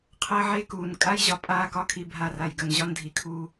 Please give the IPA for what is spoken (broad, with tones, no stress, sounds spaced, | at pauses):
qʰ əː˦ ʕ e˦ k uː˨ n kʼ a˦ j ʑ ɒ˨ pʼ aː˦ k ɒ˦ kʰ i˨ bʱ a˦˨ r a˨ j ɡ ə˨ n ʑ ɒ˦ n dʱ i˨ kʰ uː˦